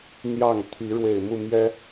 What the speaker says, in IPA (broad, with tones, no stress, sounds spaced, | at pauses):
n̪ j ɑ˥˨ ŋ t̪ʰ i˨˦ ɻ w e˨˩ ɪ̯ m u˥˨ m j ɛ˦